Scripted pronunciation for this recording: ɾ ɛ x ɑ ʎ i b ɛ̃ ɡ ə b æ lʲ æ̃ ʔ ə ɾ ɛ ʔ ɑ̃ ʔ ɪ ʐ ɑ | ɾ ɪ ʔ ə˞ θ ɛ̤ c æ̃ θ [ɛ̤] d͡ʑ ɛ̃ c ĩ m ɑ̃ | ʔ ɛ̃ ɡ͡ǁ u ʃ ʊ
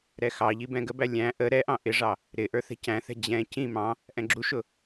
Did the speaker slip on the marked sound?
no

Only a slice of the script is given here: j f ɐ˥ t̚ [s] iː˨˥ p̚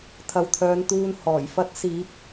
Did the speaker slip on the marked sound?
no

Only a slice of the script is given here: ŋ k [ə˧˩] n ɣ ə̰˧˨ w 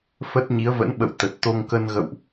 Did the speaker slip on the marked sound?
yes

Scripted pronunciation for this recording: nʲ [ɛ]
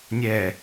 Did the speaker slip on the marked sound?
no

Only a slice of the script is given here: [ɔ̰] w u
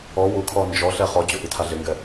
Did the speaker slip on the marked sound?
yes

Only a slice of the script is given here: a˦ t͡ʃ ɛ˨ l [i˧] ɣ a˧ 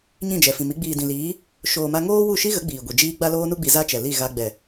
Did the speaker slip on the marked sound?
yes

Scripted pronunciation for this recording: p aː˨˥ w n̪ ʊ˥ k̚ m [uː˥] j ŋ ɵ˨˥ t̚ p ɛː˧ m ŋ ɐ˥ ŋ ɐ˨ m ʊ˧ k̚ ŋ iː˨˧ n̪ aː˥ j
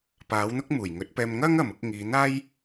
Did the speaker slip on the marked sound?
yes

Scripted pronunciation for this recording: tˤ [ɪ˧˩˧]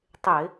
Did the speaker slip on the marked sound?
no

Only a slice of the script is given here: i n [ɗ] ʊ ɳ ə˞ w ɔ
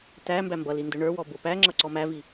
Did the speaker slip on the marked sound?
yes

